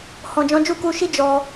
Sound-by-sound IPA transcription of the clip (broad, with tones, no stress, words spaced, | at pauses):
hɔ̃˨d͡ʒɔ̃˨˦ d͡ʒu˦˨ku˧ʃi˦ d͡ʒɔ˧